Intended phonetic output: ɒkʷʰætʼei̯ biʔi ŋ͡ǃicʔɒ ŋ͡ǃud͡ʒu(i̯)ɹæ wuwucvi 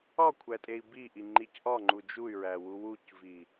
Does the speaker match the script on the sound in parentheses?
no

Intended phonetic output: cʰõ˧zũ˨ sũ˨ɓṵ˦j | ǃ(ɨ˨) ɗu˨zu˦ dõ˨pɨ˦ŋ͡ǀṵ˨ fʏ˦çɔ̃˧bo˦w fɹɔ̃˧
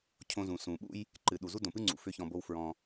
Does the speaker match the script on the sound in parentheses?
yes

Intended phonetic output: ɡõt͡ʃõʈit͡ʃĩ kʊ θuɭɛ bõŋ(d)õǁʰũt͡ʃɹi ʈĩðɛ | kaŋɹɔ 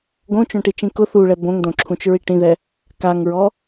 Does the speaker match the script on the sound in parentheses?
yes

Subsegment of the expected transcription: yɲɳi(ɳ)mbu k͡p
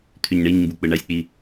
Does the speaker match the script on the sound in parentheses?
no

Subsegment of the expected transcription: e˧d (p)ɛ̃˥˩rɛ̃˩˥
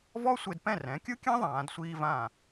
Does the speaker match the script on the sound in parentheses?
yes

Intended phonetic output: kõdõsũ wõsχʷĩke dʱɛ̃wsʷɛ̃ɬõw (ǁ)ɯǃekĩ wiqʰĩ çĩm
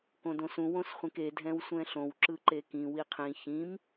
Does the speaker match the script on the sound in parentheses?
yes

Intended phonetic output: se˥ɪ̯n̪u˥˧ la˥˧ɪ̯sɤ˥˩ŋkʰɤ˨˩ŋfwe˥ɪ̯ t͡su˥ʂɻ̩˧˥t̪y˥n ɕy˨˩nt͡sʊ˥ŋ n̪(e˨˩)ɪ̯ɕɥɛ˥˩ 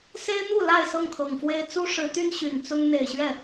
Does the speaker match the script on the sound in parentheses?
yes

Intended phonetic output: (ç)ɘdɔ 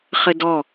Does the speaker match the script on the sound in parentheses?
no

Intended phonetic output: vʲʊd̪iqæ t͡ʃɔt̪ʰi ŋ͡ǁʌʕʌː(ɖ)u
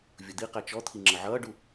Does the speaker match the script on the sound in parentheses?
yes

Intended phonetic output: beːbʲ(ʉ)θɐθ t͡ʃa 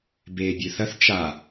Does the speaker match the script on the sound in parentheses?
yes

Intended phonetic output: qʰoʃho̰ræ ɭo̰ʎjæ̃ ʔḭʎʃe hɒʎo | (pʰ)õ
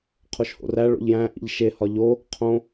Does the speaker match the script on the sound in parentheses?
no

